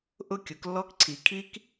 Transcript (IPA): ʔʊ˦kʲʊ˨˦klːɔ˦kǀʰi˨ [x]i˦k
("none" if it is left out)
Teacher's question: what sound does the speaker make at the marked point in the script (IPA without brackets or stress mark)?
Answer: kʰ